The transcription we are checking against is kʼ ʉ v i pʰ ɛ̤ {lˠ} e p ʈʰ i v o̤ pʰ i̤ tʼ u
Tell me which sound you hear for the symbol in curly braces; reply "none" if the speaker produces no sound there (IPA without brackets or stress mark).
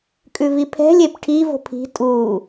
lʲ